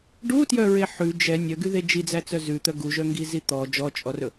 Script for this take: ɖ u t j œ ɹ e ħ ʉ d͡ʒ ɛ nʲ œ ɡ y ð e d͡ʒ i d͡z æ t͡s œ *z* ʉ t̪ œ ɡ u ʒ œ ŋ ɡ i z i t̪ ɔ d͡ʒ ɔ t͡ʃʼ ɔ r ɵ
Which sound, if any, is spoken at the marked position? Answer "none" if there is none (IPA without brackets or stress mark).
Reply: z